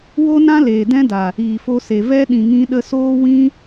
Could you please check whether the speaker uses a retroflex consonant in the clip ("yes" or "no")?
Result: no